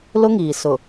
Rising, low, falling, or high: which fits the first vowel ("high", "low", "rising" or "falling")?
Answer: high